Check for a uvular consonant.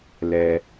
absent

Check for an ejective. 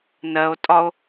present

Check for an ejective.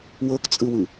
present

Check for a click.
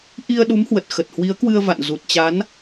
absent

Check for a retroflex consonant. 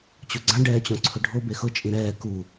present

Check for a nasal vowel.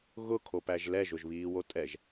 absent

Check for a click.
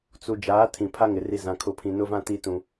absent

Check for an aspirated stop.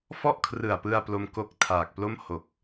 present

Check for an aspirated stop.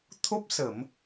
present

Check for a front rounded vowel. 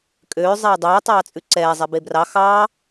present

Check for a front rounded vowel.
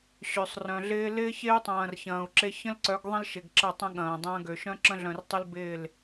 present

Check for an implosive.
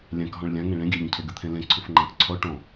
absent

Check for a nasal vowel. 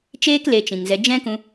present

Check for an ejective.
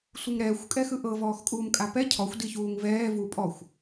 present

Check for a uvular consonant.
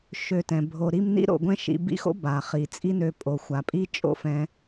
present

